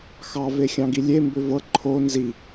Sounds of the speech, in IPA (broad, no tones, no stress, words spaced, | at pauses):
xɑ vexʲɑ̃ɡilʲe mbʏvɤ ǃʰo nzi